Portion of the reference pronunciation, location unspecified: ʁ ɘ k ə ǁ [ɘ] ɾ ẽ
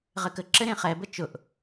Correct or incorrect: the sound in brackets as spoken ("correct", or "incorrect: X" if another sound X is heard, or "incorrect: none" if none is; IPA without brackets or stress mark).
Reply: correct